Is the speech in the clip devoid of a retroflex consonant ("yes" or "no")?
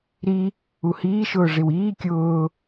no